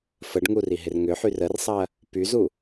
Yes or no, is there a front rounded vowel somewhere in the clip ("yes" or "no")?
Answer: yes